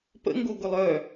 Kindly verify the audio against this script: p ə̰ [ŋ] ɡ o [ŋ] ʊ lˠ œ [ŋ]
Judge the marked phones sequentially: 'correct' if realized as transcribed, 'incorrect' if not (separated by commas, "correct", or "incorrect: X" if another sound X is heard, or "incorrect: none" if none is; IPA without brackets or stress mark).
correct, incorrect: ɡ, incorrect: none